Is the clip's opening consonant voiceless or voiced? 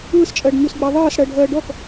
voiceless